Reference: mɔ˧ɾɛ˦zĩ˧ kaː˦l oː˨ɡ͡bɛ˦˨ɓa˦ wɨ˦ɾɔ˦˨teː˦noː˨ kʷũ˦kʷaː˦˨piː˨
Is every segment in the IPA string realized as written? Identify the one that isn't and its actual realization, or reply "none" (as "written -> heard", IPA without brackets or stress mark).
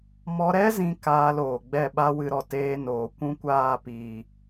none